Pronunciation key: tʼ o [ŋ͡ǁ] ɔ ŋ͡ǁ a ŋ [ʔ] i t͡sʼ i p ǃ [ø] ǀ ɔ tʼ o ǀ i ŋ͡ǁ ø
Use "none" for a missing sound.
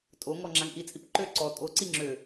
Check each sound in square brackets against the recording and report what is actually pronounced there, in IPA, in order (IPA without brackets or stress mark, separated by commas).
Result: ŋ, ʔ, ø